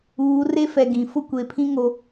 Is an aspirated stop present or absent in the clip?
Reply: present